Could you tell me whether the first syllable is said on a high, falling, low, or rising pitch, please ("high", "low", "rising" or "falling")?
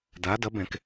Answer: rising